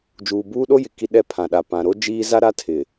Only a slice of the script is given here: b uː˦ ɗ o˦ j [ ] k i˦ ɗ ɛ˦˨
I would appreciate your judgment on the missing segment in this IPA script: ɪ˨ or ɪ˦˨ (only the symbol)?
ɪ˨